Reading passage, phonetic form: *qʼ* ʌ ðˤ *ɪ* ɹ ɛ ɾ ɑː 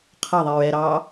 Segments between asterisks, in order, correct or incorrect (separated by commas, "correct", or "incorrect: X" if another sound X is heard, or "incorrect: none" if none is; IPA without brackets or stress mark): incorrect: qʰ, incorrect: i